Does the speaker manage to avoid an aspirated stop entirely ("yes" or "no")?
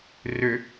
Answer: yes